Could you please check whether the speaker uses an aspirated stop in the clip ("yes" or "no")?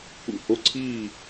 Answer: yes